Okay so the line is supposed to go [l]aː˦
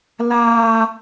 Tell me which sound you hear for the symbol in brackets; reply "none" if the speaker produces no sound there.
l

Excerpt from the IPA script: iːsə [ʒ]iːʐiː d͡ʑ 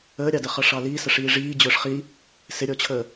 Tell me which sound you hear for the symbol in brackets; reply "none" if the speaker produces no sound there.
ʂ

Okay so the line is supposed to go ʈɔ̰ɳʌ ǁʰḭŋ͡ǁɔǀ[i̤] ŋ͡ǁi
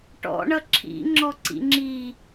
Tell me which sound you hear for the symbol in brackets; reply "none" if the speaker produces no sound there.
ḭ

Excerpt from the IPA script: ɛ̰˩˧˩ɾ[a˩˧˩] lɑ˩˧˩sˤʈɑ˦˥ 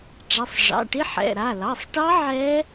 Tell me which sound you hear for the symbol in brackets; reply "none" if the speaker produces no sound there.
a˩˧˩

